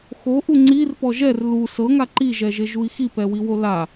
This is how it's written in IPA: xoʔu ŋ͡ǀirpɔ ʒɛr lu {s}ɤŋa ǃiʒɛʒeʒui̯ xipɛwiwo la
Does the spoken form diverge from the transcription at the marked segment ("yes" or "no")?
no